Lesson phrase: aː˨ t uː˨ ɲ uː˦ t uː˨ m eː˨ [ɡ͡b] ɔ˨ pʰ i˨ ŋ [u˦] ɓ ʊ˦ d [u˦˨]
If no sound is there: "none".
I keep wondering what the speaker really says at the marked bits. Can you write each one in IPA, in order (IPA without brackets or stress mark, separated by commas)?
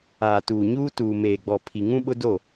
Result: ɡ͡b, ũ˦, o˦˨